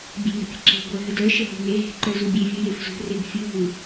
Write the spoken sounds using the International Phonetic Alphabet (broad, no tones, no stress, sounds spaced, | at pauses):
bʲ e̤ n ə̤ pʲ ə̤ ǁ e̤ ɡʷ œ ɦ ə d œ ʃ ə ɦ ṳ n e ɦ e̤ ǃ œ z u bʲ e vʲ u j e f z ṳ r e ɡ fʲ u ɦ u